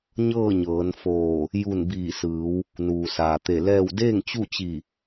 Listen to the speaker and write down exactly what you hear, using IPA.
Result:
ɲɤː˥˨ɲɤː˩˧nfoː˧˩ | ju˧˩n biː˧˩sɯː˩˧w | nuː˩saː˩t̪e˧˩lɛː˥˨w deː˥˨ŋt͡ɕu˥˨t͡ɕi˧˩

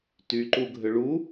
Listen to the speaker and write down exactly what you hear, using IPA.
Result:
tyǃuɡʱʏ ɭu

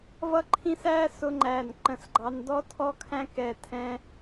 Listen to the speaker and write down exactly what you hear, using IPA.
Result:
vʌ˥ ǃʰĩ˥s æ˥ sʊ˥ŋ͡ǃæ˥˩nǃə̃˥˩sɡ͡ǃɑ˥n dɔ˥tʰɔ˥kʰæ̃˥ kɛ˥˩tʰɛ̃˥

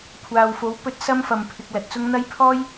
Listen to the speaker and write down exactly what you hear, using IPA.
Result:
kʷʰaː˨wfo˨˥w pɵ˧t̚ sɐ˥mfɐ˨mpʰɪ˨k̚ lɐ˨t̚t͡sʊ˥ŋ n̪ɐ˥j pʰɔː˥j

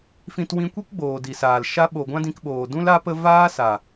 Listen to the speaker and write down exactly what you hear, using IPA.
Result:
fĩ˨t wĩ˧kʷi˦kɡ͡boː˨ di˨saː˨l ʃa˧ɓo˨ ɡʷã˦dĩ˧kɓoː˨ dũ˦la˦pə˦ vaː˦sa˨

